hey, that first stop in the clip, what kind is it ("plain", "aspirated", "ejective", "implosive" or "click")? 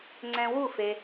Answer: click